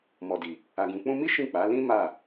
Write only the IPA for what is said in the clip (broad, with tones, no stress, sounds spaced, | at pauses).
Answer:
m ɔ˨ d i˨ | a˨ ɡ ũ˨ k͡p ũ˧ m i˦ ʃ ĩ˦˨ k͡p a˨˦ l ĩ˦ m a˦˨